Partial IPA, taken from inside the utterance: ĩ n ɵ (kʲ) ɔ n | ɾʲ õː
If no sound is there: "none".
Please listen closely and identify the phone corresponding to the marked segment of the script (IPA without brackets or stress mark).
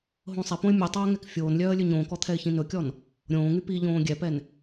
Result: kʲ